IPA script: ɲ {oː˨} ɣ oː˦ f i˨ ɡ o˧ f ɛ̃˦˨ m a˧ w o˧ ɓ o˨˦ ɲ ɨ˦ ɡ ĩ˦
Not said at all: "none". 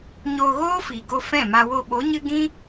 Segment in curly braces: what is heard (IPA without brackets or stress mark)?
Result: oː˧